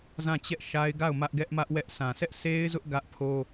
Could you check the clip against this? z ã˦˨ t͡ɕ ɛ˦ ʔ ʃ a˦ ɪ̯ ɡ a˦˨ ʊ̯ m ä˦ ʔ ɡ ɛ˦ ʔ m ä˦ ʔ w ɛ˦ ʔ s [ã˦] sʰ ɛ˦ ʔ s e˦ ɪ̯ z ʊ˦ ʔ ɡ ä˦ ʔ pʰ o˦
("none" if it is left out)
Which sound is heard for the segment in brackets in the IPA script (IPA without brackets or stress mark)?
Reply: ã˨